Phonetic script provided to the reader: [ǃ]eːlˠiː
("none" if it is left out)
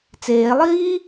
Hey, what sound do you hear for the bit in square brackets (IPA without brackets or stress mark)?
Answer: t͡s